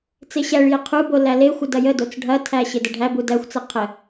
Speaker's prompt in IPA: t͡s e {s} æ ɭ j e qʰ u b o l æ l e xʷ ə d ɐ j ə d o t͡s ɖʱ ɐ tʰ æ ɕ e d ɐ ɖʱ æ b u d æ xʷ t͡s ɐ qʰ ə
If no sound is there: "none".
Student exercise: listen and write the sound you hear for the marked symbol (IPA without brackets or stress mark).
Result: ɕ